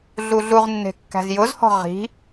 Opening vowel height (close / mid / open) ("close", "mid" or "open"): close